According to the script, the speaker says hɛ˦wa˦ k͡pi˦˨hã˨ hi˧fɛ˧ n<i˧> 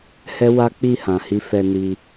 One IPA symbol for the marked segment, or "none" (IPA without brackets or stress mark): i˧